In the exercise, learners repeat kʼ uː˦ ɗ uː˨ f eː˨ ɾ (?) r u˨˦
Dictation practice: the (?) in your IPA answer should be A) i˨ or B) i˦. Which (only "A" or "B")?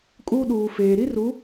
B